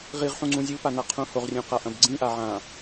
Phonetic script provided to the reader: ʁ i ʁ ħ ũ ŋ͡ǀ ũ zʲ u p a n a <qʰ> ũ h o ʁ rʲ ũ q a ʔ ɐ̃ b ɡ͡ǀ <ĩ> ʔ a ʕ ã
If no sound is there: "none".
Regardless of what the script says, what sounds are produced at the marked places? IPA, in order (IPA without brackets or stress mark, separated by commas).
qʰ, ĩ